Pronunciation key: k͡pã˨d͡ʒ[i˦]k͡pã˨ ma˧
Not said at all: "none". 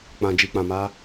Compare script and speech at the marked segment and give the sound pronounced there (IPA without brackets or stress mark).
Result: i˨